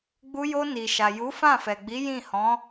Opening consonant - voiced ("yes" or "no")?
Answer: yes